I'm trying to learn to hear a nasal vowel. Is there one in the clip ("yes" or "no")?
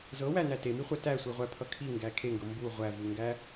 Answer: no